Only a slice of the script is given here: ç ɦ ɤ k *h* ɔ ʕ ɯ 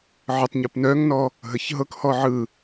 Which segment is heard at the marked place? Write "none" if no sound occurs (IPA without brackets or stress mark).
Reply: h